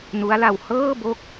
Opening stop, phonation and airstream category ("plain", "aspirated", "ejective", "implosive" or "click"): plain